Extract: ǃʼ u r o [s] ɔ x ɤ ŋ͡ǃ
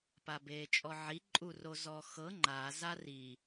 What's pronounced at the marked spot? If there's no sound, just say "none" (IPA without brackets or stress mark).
z